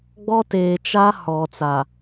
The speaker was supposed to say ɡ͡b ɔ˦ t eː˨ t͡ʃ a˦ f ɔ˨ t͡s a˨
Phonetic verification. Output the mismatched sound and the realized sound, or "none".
f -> h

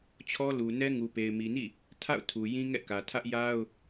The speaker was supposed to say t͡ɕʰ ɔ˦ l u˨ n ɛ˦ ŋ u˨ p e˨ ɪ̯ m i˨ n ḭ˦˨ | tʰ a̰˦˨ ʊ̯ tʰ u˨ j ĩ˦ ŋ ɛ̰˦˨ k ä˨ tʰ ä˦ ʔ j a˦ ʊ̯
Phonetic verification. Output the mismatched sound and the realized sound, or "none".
none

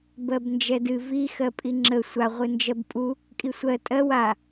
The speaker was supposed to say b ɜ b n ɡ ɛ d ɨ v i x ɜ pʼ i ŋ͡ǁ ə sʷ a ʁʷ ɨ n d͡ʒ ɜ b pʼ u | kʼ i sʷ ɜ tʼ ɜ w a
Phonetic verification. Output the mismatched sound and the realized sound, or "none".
ɡ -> d͡ʒ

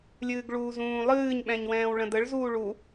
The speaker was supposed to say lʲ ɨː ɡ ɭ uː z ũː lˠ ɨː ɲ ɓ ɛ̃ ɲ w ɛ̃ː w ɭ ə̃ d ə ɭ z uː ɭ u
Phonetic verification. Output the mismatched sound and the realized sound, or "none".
none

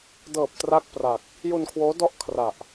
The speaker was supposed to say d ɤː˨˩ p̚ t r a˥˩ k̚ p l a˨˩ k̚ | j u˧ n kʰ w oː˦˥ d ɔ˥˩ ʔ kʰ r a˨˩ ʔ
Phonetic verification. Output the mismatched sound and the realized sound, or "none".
l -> r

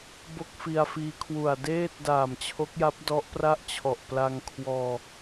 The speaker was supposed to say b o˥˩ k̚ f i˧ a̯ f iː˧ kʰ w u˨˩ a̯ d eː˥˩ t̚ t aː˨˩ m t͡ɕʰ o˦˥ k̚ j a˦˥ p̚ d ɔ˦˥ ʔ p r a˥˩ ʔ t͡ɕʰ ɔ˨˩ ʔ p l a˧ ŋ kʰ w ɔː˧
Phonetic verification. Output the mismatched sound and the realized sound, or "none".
t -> d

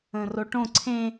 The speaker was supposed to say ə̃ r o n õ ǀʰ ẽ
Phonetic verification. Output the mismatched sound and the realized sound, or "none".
n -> ʈ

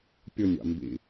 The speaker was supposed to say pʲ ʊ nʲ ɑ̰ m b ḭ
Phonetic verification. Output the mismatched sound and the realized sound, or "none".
none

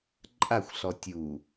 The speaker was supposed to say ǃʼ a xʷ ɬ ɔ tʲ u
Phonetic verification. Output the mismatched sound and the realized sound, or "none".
none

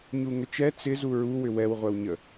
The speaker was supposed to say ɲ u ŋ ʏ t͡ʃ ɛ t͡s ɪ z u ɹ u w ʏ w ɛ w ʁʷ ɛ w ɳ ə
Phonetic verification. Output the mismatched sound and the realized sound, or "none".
ɳ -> ɲ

